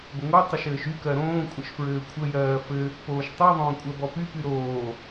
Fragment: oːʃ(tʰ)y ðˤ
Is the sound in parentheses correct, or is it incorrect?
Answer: incorrect